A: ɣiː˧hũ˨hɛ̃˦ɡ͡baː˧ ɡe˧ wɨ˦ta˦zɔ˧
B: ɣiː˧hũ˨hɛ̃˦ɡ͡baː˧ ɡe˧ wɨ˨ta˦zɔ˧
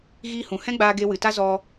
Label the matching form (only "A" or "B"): B